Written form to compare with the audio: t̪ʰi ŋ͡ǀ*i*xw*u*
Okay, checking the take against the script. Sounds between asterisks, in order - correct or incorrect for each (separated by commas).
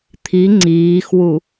incorrect, correct